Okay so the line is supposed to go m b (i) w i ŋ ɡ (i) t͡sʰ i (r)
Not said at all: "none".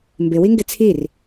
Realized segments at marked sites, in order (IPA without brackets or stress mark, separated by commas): ɪ, ɪ, r